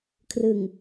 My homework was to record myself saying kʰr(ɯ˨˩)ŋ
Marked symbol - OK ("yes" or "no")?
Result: yes